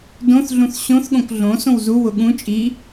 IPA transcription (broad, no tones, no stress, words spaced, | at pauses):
dõθɮũθ ɕõθɠõk ɮõ sõwzuwʊ ɠũ t͡ʃʼi